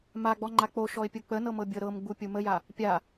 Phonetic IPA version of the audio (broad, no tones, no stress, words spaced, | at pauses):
maɡ͡bɔŋ͡ǃa k͡poʃɔɪ̯pʲu k͡pənɤmɤbʲɤ ɾɤmɡ͡bupʲu məja | pʲa